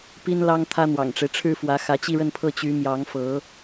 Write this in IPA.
p i˥ n l ɑ˥ ŋ t̪ʰ ä˥ n̪ w ɑ̰˨˩ ŋ ʈ͡ʂ e˦ ɪ̯ ʈ͡ʂʰ ɻ̩˥ f w ä˧˥ x ä˧˥ t͡ɕ i˥˧ ɻ ə˥˧ n pʰ ɤ˥˩ t͡ɕ y˧˥ m j ɑ˧˥ ŋ f ɤ˧˥

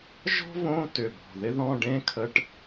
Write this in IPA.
ʒ ɔ̤˥ v õ˧˥˧ t ʏ˧˩ b ɔ̤˧˩ ð ɪ˥ ð ɔ̃˧˥˧ ɖ ẽ˥ kʰ ə˧˥˧ ʈ

